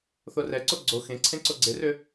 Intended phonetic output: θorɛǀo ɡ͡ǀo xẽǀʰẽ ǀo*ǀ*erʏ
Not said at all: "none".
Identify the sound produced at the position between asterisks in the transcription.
ɡ͡ǀ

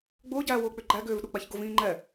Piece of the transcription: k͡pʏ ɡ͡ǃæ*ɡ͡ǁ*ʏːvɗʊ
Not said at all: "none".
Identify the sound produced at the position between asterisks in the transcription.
ɡ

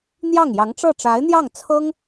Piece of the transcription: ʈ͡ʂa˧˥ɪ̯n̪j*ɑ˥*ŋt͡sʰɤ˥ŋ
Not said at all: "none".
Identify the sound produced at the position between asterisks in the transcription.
ɑ˥˩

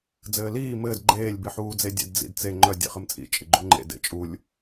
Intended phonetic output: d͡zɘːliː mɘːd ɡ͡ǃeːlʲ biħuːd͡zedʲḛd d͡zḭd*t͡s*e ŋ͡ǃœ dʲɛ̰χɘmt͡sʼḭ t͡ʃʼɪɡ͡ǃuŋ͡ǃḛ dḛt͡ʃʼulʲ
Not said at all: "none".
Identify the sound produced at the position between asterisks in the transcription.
t͡s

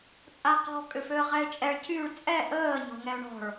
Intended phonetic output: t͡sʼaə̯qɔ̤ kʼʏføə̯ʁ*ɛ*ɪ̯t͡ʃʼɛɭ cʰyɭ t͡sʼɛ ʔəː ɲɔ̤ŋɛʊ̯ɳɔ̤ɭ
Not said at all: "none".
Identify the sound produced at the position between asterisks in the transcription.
ɛ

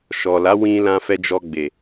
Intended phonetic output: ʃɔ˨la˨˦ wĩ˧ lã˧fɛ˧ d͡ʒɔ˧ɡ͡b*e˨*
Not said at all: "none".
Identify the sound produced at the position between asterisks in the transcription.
e˨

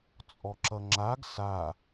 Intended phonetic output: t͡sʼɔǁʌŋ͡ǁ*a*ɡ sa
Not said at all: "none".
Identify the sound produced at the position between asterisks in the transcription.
a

